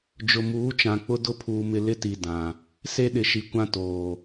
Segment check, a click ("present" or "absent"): absent